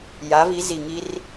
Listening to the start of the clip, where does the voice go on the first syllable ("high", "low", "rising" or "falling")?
rising